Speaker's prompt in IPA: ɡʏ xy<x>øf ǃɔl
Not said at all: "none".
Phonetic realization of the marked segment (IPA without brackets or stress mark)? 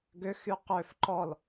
q